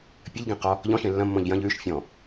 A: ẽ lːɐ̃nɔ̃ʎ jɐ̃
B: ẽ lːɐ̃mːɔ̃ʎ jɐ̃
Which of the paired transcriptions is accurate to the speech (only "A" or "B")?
B